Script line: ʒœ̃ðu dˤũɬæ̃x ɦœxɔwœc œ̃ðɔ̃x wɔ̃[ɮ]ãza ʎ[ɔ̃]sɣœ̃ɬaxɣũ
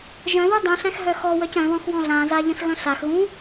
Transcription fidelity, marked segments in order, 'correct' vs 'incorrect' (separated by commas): correct, incorrect